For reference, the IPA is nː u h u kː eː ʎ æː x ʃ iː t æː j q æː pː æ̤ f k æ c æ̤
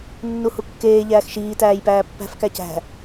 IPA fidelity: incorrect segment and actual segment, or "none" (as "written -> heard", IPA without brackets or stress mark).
q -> p